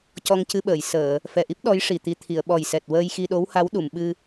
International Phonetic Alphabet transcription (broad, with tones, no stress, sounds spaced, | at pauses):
c ɔ˧ ŋ c ɨ˧ ɓ əː˨˩˨ j s əː˨˩˨ | f ɛ˨˩ ʔ i˦˥ p̚ ɗ ɔ˧˥ j ʂ i˨˩ t̪ i˧ t̪ʰ i˨˩˨ ə̯ ɓ ɔ˨˩ j s ɛ˨˩ t̚ w əː˧ j x i˧ ɗ o˧˥ w h a˧˥ w ɗ u˨˩˨ m ɓ ɨ˧